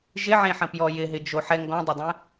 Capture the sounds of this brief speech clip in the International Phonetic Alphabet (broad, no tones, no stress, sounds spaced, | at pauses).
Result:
ʒ ɪ ʕ ẽ ħ ə̃ p j ɔ j ɪ ɦ ɪ d͡ʒ o ħ ɛ ŋ ɡ ɔ̃ dˤ ə dˤ ɛ̃